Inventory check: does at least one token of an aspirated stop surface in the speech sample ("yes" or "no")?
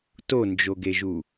no